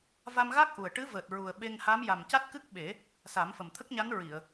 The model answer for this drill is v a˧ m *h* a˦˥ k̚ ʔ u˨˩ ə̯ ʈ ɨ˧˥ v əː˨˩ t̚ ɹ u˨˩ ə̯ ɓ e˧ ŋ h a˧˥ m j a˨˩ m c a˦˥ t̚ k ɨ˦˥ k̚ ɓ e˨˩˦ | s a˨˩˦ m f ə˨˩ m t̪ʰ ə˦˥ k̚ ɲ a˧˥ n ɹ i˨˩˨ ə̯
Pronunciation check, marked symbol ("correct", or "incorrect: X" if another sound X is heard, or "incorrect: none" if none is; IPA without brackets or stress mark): incorrect: ɣ